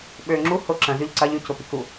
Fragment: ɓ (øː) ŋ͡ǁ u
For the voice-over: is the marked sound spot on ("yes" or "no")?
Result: yes